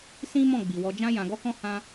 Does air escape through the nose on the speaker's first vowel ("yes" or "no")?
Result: yes